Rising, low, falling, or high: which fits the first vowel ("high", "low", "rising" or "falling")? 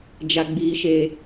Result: high